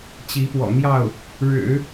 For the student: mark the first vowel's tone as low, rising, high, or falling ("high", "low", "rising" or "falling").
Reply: rising